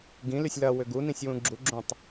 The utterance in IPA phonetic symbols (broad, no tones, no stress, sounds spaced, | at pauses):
ɡ ĩ l y sʲ l ɐ w ʏ ɡ u n ĩ sʲ w ũ ɡ͡ǁ u ɡ͡ǁ ũ tˤ